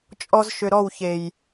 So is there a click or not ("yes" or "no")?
no